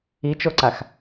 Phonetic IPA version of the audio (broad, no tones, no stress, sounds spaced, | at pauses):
i t͡ʃ o ǀ a x